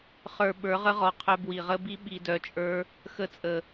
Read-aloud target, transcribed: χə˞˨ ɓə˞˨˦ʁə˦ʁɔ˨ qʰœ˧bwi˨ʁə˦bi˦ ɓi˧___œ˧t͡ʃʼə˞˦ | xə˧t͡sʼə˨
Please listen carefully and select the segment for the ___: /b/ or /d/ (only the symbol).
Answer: d